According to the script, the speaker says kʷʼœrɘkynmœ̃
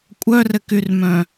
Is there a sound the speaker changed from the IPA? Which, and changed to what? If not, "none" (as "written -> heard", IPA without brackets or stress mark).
n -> r